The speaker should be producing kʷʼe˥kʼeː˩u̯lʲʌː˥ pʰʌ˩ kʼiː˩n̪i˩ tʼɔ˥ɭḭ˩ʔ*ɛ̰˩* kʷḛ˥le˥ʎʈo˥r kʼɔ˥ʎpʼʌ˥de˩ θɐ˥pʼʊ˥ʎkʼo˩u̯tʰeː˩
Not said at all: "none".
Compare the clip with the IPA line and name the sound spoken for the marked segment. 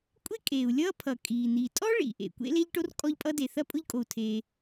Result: ḛ˩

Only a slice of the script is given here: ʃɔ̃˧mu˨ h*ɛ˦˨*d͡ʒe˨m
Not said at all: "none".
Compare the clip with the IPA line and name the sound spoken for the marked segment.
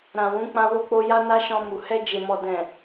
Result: ɛ˧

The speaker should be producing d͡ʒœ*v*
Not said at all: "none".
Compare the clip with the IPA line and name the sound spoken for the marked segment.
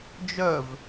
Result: v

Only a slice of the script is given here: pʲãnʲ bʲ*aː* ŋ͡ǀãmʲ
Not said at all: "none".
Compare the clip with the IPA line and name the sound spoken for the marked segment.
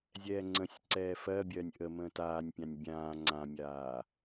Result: ãː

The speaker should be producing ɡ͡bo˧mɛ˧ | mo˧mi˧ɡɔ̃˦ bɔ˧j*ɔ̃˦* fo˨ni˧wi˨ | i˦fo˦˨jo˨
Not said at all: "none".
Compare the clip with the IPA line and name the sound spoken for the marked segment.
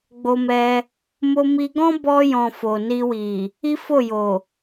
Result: ɔ̃˨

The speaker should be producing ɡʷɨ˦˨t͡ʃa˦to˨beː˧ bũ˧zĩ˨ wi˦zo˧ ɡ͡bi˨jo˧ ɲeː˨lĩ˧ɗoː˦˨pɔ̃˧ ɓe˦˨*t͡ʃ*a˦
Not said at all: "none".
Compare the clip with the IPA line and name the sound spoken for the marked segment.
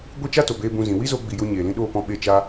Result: t͡ʃ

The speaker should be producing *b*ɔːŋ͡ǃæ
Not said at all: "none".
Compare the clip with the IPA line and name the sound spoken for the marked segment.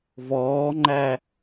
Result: v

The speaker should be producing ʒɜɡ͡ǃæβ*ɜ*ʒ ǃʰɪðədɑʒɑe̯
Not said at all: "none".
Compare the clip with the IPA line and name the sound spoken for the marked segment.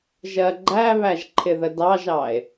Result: æ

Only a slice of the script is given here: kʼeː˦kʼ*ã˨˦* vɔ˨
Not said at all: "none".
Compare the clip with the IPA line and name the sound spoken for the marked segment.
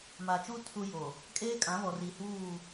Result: ã˨˦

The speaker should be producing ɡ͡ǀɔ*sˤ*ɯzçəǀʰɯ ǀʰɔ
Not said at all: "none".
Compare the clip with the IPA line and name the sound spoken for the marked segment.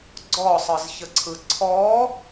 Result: sˤ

